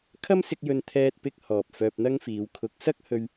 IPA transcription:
kʰ ɐ˥ m s ɪ˧ k̚ j ɵ˧ n t̪ʰ ɛː˧ t̚ p ɪ˧ k̚ h ɔː˨ p̚ f œː˧ p̚ n̪ ɐ˥ ŋ f iː˨˧ w kʰ ʊ˨˥ k̚ s ɐ˥ k̚ h ɵ˧ ɥ

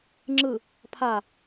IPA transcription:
ŋ͡ǁ ɯ | pʰ a

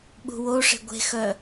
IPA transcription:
ɓ ṳ w o ʂ e̤ ɡʷ e̤ x œ

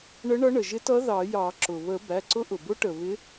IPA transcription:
ɳ ə˧˥ ɳ ʌ˧˥ ɳ ə˩ ʒ ɪ˧˥ t ʌ˧˥ ð ɑ˨˩˦ j ɑ˨˩˦ ǁ ʊ˩ β ə˨˩˦ b æ˩˧˩ ǀ ʊ˧˥ ʔ ʊ˩ b ʊ˧˥ ʈ ə˩ β ɪ˧˥

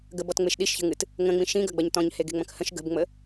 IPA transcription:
ɡ ə b ɔ t ŋ͡m e ʃ ɗ i ʃ ç ə̤ ŋ ɨ t | ŋ ə̃ ŋ͡m ĩ ʃ ĩ ɡ ɐ ɡ͡b ɐ ɲ t ɔ̃ ɲ h e ɡ e̤ ŋ͡m ɐ̃ k h ə̃ ʃ ɡ ə̤ b ŋ͡m ə

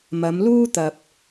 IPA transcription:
m ɐ˨˧ m l uː˥ t̪ ɐ˧ p̚

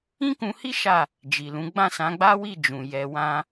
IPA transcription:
ĩ˦ k ũ˧ h i˦ ʃ a˦˨ | d͡ʒ i˨ l ũ˨˦ ɡ͡b ã˦˨ s ã˨˦ ɡ͡b a˦ w i˦˨ d͡ʒ ũ˨ j ɛ˧ w ã˦

